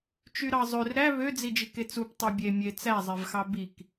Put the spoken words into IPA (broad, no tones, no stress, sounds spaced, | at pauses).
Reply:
t͡ʃ y ɾ ɑ zˤ ø r ɾ æ β ø d͡z i d͡ʒ i k e t͡s u p tˤ ø bʲ e mʲ e t͡s æ zˤ e v x ɑ b i k